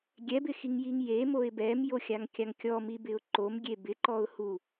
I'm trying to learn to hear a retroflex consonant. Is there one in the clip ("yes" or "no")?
no